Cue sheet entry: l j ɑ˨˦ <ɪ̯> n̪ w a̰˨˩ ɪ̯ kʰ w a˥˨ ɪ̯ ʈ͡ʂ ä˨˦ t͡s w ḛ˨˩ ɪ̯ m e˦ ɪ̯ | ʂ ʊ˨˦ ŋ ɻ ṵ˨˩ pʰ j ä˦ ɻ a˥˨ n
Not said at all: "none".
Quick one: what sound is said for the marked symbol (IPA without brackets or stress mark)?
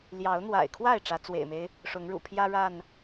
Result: ʊ̯